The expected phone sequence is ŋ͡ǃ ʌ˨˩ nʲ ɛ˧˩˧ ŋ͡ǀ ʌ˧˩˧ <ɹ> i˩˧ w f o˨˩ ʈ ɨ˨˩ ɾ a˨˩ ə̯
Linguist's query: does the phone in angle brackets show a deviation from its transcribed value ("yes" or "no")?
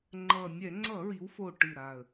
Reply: no